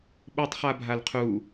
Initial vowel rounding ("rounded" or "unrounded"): rounded